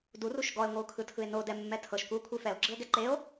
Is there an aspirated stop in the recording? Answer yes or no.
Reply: yes